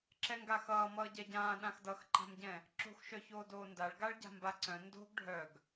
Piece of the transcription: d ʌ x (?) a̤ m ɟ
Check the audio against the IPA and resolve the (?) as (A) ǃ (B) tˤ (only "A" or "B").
A